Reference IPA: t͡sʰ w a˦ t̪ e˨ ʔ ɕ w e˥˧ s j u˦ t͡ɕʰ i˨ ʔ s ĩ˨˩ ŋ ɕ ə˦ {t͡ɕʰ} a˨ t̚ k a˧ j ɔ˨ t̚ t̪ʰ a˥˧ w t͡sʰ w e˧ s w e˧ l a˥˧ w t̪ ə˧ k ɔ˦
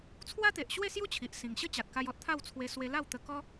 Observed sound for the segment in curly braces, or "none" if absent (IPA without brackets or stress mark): t͡ɕ